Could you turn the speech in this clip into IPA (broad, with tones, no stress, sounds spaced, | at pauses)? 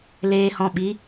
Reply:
l eː˧ h ɔ̃˧ ɓ i˨˦